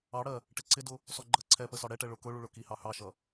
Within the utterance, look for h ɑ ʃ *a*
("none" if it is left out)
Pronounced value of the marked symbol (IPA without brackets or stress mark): ʌ